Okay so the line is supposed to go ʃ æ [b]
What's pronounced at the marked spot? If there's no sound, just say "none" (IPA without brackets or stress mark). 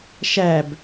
b